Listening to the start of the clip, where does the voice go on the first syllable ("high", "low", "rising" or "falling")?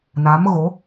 rising